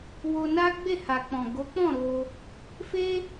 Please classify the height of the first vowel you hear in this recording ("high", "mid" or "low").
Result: mid